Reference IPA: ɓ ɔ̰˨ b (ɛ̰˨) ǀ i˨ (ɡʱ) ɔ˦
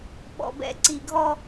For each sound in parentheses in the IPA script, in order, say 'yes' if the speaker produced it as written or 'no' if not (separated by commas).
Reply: yes, yes